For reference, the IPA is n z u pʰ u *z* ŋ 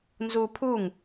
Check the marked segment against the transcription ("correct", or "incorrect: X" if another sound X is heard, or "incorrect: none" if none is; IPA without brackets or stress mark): incorrect: none